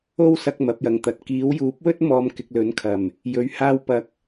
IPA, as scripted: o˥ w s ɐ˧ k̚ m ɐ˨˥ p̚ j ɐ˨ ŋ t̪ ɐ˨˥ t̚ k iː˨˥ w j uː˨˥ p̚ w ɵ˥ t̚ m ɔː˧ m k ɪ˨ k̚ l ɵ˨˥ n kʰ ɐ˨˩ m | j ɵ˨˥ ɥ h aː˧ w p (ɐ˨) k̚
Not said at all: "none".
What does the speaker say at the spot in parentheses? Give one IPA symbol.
ɐ˨˥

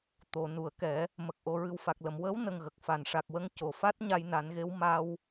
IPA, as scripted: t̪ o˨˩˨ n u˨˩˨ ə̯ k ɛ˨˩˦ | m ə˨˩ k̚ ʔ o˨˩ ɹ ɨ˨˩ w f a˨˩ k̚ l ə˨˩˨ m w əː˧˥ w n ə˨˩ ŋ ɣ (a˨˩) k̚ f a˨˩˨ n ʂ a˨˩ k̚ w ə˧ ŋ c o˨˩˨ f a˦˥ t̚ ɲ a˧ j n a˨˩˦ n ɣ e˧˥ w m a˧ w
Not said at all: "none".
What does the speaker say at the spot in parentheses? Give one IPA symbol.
ə˨˩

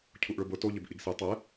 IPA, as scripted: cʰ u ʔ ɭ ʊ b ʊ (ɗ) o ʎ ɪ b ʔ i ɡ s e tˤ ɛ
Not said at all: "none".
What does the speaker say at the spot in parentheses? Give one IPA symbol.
t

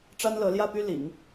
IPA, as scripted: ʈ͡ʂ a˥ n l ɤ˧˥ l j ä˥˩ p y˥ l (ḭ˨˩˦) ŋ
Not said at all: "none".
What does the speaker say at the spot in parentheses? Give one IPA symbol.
ḭ˨˩˦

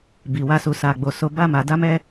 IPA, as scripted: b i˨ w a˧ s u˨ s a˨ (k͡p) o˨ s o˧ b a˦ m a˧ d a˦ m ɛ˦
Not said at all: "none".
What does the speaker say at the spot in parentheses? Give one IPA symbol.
ɡ͡b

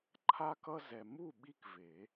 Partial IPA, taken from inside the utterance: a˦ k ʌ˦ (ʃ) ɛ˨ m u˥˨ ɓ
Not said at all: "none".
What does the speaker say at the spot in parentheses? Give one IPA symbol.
z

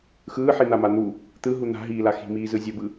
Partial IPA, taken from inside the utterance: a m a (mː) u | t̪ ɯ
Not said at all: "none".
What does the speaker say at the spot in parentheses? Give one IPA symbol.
n̪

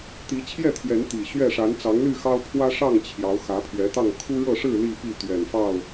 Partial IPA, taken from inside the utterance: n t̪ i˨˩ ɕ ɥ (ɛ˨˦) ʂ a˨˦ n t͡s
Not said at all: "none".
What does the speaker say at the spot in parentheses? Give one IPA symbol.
ɛ˥˨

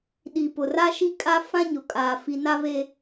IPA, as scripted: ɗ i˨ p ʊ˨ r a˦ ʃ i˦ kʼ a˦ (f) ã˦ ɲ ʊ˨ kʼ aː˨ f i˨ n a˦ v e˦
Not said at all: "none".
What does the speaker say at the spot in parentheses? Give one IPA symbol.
f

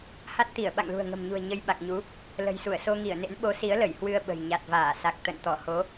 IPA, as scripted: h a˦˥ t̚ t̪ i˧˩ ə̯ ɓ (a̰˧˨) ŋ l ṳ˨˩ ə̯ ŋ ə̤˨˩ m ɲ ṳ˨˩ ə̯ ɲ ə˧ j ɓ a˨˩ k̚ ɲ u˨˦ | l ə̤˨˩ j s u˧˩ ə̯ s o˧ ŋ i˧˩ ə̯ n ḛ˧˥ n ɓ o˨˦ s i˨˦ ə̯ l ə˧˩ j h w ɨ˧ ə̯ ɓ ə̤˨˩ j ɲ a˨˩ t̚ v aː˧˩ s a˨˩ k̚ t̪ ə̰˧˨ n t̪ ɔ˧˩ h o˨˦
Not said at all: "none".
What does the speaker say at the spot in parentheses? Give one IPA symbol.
a̰˧˨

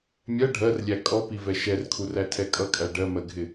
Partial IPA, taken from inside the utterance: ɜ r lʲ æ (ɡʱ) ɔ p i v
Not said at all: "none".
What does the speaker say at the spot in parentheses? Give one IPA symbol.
kʼ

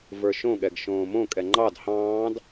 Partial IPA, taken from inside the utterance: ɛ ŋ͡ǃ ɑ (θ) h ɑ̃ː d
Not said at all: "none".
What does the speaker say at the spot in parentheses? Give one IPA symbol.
d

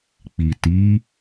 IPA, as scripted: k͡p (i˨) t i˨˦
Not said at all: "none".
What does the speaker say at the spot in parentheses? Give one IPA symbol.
i˨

